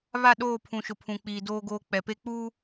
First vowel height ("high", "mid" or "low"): low